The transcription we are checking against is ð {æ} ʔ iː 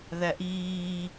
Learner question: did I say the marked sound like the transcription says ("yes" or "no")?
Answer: yes